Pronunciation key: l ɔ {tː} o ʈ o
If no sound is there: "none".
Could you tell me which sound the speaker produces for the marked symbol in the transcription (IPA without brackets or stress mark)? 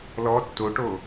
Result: tː